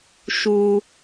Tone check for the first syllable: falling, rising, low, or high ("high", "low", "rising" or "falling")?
high